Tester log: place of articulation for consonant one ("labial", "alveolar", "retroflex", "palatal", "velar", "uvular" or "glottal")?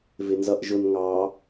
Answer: labial